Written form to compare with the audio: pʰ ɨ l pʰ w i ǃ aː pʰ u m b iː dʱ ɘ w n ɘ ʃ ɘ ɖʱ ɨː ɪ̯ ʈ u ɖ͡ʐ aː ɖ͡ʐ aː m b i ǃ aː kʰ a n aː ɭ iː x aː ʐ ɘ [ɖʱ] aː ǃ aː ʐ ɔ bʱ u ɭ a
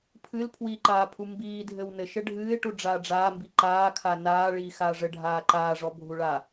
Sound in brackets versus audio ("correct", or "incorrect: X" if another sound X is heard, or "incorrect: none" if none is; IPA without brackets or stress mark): correct